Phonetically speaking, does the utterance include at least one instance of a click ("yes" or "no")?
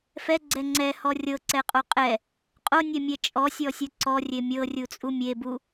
yes